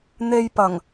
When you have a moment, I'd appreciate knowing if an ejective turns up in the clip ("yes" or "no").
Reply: no